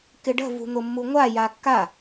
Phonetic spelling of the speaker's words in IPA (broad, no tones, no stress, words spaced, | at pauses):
kɪɖə̤ vṳn̪ʊmːuŋʷa jakːa